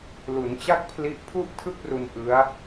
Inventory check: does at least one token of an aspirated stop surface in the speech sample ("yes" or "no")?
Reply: yes